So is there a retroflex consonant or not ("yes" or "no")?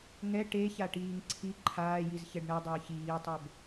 yes